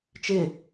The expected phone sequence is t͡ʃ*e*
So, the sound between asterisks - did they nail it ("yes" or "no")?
yes